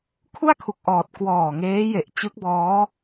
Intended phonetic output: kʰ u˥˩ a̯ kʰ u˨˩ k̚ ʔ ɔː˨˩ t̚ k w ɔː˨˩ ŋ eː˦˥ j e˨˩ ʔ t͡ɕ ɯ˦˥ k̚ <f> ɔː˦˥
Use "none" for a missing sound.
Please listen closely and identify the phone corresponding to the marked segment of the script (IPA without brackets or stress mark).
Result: b